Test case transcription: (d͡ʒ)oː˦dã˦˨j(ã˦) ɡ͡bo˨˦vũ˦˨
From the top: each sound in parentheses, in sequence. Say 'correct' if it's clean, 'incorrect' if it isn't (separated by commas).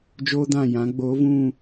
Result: correct, incorrect